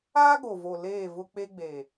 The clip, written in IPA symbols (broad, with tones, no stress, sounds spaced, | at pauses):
aː˦ ɡ o˨ v o˨ l eː˦˨ v ʊ˦ k͡p e˦ ɡ͡b e˨